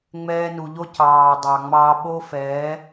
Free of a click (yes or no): yes